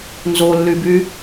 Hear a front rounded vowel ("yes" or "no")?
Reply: yes